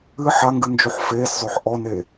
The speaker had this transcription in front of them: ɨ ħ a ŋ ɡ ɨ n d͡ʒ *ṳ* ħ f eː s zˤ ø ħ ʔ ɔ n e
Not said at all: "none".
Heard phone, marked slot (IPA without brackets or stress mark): u